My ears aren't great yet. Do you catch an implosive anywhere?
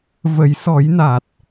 no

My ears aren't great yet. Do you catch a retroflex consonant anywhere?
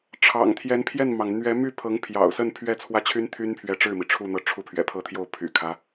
yes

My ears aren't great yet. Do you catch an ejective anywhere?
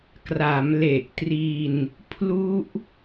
no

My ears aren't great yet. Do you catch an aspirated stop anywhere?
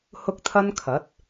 yes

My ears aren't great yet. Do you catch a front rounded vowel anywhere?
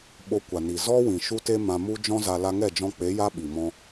no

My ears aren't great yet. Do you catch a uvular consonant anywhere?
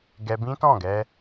no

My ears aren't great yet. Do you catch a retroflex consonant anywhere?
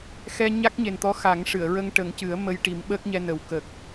yes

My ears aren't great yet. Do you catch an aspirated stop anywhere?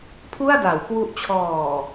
yes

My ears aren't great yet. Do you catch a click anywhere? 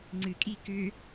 yes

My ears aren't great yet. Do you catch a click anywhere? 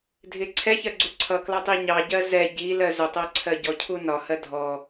yes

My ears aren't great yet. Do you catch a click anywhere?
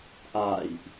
no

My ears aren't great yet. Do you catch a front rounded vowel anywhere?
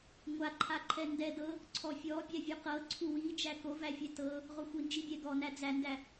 no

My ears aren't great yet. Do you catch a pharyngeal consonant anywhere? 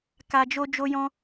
no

